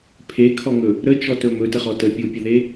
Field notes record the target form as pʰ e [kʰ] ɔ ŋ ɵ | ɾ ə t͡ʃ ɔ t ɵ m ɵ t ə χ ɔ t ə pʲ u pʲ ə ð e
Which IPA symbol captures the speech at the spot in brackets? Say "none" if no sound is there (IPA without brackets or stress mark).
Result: kʰ